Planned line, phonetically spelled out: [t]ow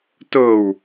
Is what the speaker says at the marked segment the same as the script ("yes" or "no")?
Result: yes